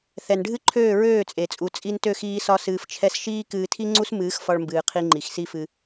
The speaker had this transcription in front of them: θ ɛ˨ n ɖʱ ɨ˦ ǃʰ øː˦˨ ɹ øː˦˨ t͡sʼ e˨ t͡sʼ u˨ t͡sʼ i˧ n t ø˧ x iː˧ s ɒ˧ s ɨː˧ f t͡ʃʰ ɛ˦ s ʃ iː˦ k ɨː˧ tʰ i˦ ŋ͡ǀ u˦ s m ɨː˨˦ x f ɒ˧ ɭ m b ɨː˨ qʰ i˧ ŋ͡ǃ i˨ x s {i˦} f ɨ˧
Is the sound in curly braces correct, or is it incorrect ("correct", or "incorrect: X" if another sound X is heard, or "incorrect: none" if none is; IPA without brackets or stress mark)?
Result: correct